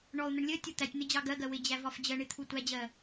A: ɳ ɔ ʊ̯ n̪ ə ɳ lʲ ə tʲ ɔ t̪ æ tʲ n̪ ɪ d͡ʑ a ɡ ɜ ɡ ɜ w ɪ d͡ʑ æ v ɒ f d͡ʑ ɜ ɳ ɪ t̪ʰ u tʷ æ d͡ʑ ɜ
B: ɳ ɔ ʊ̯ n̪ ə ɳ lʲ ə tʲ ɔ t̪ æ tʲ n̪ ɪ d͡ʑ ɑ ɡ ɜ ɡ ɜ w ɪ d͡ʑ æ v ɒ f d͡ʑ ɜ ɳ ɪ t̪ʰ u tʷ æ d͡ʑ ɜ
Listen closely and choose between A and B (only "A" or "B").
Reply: B